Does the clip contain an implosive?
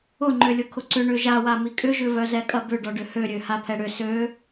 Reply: no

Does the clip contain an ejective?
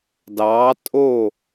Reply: yes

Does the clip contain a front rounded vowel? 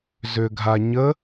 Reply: yes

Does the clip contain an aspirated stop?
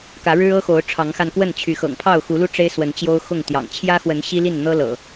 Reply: yes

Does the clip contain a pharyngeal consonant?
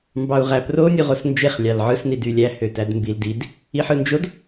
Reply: yes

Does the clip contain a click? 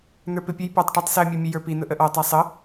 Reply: no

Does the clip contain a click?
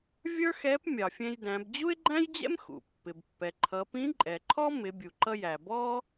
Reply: yes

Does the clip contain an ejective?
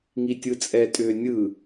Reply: yes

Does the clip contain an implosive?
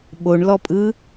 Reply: yes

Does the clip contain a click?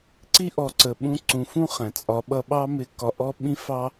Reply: yes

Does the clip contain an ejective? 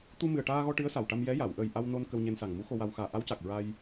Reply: no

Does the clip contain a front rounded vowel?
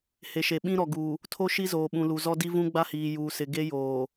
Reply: no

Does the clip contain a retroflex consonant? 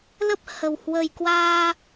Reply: no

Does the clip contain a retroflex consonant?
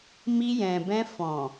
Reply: no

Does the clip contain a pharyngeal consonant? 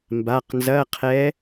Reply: no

